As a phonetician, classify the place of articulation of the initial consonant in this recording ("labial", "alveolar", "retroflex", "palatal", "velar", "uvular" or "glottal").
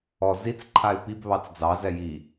alveolar